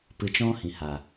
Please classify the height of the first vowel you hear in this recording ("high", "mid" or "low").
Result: high